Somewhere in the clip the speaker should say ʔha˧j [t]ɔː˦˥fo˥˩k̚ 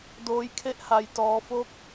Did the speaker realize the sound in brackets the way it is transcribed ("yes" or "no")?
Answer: yes